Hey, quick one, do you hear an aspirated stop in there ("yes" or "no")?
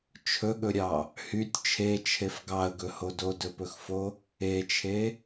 yes